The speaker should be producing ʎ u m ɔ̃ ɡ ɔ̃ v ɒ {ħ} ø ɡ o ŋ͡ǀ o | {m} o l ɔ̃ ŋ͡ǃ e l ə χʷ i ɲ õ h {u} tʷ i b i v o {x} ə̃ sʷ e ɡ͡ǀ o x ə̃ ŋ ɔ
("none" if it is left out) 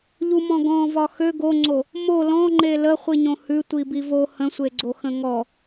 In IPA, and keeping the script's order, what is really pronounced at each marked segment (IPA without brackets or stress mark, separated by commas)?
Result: x, m, ʉ, h